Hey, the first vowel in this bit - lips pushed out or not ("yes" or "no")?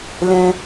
no